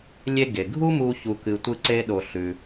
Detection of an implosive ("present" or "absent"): present